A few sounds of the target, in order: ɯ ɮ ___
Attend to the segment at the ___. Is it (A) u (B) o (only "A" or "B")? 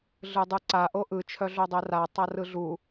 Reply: A